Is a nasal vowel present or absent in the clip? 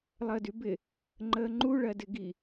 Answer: absent